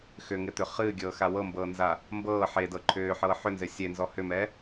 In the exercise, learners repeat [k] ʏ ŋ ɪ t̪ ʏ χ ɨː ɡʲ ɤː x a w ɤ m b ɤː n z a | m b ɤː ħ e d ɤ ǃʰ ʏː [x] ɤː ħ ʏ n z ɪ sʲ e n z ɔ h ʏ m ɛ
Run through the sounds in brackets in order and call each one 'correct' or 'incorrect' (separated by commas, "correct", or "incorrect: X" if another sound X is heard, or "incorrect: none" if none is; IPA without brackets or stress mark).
incorrect: x, incorrect: ħ